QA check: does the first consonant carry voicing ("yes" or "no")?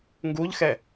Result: yes